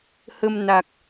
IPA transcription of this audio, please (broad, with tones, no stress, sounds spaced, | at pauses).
h ə˧ m n a˨˩ k̚